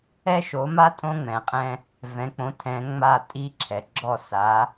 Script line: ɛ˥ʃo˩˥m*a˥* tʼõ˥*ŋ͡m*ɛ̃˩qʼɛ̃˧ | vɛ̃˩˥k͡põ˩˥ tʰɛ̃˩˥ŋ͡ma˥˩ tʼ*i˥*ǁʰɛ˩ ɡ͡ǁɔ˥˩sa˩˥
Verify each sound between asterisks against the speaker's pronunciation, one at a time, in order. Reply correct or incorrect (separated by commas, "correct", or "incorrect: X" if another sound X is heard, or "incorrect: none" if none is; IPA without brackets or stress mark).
correct, correct, correct